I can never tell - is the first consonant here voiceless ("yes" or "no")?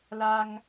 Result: no